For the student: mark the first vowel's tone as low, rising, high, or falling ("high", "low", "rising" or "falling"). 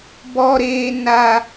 high